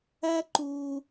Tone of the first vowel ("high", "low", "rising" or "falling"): high